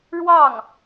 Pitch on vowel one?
falling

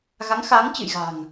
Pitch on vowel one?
rising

